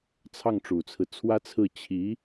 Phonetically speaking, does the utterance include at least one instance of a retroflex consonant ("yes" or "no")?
yes